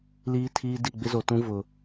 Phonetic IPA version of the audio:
l iː˦ tʰ iː˦ d i˦˨ ɡ͡b ɪ˦ z o˨ t ũ˦ v ʊ˨

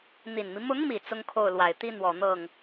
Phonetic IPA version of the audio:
n̪ i˨˩ n m i˦ m ʊ˧˥ ŋ m i˨˩ t͡s ʊ˥ ŋ kʰ o˥˩ ʊ̯ l w a˨˩ ɪ̯ t̪ i˥ n̪ w ɔ˨˩ n̪ ɤ˥˩ ŋ

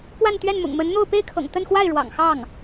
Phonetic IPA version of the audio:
p w a˥˧ n t̪ ɥ ɛ˥˩ n m ʊ̰˨˩ ŋ m ə˧˥ n n̪ o˥˧ ʊ̯ p e˥˩ ɪ̯ kʰ ɤ̰˨˩ ŋ t̪ ə˥˧ n x w a˥˩ ɪ̯ ɻ w ɑ̰˨˩ ŋ x ɑ˥˩ ŋ

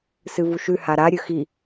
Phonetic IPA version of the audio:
s ɨ v u ʃ ʉ h a ɾ a ɾʲ ɵ x i

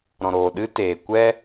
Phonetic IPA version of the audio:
ɾ ɔ̃˨ ɾ oː˨ ɗ ɨ˦ t eː˨ kʷ ɛ˦

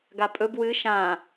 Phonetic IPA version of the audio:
ɡ a pʼ ɵ b w ɨ ʃ ã

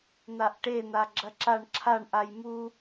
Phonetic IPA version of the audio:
n̪ a ʔ ʈ e n̪ a ɡ͡ǁ ɐ ǁ a ɳ ǁʰ a ɳ ʔ a j m u

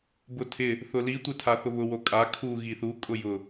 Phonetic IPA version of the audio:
b ʊ tʰ ɪ | θ ʊ l i tʷ e tʰ a θ ʊ β ʊ w o kʼ a kʰ u ɣ i θ u kʼ ʊ j ʊ

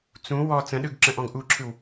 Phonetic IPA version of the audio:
t͡s ũ w ɔ t͡s ə̃ ɗ ɯ ɡ ǁ ə̃ ʔ ɔ̃ ɡ ʔ u ǁʰ ɯ w

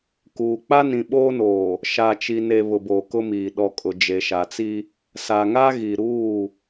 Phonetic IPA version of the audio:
k uː˨ k͡p a˦ n ĩ˨ ɓ oː˦ n oː˨ | ʃ a˨ t͡ʃ i˨ n e˨ β ʊ˨ b oː˨ k ʊ˦ m iː˨ ɗ ɔ˨ kʼ ʊ˨ d͡ʒ e˨ ʃ a˨ t͡s i˦ | s a˨ ŋ a˦ ɣ i˨ ɾ uː˦˨

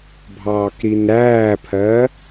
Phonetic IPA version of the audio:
bʱ ɑː k ɾ i n ɾ æː pʰ ɜ

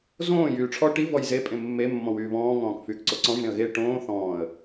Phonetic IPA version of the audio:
z õː j yː ʈ͡ʂʰ ɔ ʈ i v ɔ j z e pʼ ẽ mː e mː ɔ̃ w yː β ɔ̃ː ŋ ɔ̃ː k f yː k ǀ o ǀ ɔ̃ ʐ ẽ ə̯ ɣ e ʈ õː θ ɔ̃ː ə̯

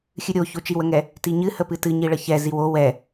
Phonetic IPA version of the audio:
xʲ ɨ ɾʲ o ç o t͡ʃ i w ə ŋ ɛ | t i ɲ ɨ h ə p ɨ t ɨ ɲ i ɭ ə ç ɛ z i w o w ɛ

